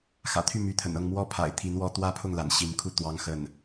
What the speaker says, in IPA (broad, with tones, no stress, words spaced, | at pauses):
xä̰˨˩t̪ʰy˥˩ my˧˥t̪ʰə̰˨˩nɤ˥˩ŋ mwɔ˥pʰa̰˨˩ɪ̯ t̪ʰi˧˥nwɔ˥ t̪wä˥˧pʰʊ˥˩ŋla̰˨˩n ɕi˧˥nkʰu˥˩ t̪wɑ˥ŋxə˥˩n